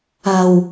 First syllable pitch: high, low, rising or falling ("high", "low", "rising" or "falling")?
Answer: low